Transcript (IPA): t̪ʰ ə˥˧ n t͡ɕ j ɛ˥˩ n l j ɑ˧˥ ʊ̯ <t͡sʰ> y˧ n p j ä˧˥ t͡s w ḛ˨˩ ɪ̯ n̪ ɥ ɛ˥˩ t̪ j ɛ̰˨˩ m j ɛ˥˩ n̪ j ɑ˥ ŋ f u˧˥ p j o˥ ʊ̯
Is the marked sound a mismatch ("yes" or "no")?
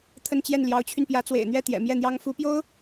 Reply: yes